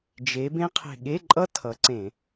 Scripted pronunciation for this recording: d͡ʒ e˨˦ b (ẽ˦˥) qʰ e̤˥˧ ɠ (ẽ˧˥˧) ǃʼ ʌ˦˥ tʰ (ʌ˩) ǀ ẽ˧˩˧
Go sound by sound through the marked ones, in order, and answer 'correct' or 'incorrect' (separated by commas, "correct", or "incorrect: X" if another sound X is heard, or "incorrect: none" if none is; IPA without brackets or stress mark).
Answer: correct, incorrect: e˧˥˧, incorrect: ʌ˨˦